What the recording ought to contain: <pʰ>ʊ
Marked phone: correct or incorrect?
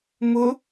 incorrect